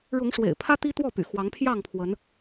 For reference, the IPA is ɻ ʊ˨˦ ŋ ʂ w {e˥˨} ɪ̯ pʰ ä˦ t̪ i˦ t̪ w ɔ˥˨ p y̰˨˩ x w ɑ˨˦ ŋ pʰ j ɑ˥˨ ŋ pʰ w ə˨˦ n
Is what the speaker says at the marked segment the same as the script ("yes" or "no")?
no